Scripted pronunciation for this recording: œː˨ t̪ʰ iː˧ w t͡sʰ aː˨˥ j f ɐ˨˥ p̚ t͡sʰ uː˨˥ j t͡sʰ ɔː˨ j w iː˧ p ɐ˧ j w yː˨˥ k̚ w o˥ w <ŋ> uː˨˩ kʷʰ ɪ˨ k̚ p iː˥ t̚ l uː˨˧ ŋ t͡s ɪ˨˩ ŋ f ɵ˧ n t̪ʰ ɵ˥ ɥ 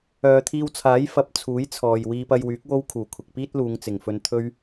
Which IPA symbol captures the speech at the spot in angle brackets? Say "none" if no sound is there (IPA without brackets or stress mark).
kʰ